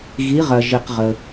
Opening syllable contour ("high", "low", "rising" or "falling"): rising